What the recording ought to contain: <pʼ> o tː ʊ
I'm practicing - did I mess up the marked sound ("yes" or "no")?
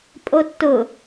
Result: no